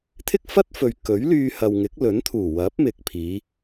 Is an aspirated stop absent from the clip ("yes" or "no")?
no